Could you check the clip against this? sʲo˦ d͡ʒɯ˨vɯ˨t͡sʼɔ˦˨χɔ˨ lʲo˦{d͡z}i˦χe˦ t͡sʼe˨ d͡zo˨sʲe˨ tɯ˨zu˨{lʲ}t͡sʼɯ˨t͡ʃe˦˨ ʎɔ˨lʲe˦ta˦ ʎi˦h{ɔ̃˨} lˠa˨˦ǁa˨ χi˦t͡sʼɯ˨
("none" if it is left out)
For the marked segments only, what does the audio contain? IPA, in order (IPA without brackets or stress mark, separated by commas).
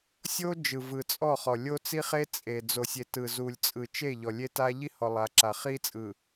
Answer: t͡s, lʲ, ɔ˨